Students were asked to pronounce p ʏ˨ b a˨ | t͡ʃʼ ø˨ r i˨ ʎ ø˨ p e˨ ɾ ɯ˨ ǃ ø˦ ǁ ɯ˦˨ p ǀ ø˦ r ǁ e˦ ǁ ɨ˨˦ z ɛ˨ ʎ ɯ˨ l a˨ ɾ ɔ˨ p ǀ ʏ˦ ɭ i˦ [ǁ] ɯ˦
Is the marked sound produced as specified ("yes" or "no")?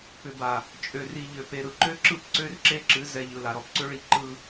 no